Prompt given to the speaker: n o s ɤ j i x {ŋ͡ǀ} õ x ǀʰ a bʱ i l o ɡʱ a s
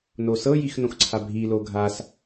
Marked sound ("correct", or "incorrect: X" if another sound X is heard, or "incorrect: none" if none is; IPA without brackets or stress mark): incorrect: n